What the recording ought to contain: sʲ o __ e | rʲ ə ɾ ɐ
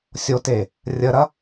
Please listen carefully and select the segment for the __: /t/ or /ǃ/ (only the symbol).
t